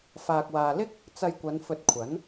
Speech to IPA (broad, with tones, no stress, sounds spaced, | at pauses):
f aː˨ k̚ w aː˨ l ɪ˥ k̚ | t͡s ɐ˧ j kʷ ɐ˨˧ n f ɵ˧ t̚ kʷʰ ɐ˨˥ n